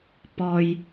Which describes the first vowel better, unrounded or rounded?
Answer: rounded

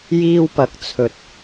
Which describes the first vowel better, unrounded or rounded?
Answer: unrounded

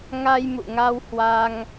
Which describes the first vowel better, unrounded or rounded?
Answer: unrounded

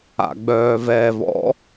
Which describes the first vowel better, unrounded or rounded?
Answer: unrounded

